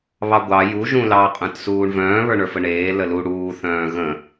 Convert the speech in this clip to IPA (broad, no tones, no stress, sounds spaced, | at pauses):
β ɑ ɡʷ ɑ j u ʒ ũ l ɑ qʼ œ̃ t s uː ɳ v œ̃ː β ə˞ ɳ ə˞ f ə ɳ eː l ə l u ɽ uː θ œ̃ː ɣ ə̃